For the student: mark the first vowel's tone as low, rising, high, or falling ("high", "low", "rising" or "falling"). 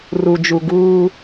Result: low